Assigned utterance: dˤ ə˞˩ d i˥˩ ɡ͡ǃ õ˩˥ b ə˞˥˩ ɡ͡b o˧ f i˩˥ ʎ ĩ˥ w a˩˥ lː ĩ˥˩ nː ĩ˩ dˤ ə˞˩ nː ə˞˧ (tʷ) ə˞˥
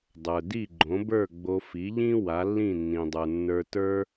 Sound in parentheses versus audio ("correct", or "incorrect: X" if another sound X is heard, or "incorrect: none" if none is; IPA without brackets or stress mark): incorrect: t